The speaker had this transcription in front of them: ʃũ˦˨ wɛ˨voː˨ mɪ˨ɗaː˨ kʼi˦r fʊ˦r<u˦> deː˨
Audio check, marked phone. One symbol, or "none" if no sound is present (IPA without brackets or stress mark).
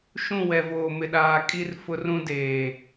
ũ˦